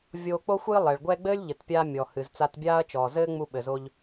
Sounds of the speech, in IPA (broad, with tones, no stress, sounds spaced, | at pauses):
vʲ oː˧ k͡p o˥ xʷ ɨː˥ lˠ ɛ˩ ɭ ɡʷ ɛ˥ ɡ͡b ɘː˥ lʲ ʎ ɘ˩ t pʲ aː˧ mʲ ɔ˩ h ɨ˩ z t͡s a˧ t bʲ aː˥ ɐ̯ t͡ʃ ɔː˩ z ɘː˥ ŋ͡m u˧ ɓ ɘ˩ z o˧ ʎ